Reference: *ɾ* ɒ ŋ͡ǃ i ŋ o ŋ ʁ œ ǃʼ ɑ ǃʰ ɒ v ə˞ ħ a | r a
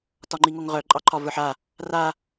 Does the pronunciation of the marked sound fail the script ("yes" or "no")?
yes